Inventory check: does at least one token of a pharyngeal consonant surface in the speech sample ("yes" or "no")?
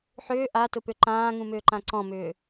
yes